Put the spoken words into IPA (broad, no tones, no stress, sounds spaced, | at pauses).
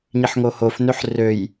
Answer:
ɲ i ħ ŋ o h o f n ø ħ r ø j